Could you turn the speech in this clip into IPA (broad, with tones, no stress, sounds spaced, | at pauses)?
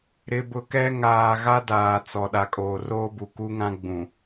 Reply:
ɾ ɪ˨ b ʊ˨ k ɛ˦ ŋ aː˨ ɣ a˦ d aː˨ t͡s ɔ˨ ɗ a˨ kʼ oː˨ r oː˦ b u˨ k u˦ ŋ ã˦ ɡ͡b ũ˨